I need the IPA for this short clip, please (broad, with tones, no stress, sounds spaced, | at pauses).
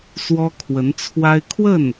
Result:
s w ɔ˥ kʰ w ə˧˥ n t͡sʰ w a˥ ɪ̯ kʰ w ə˥˩ n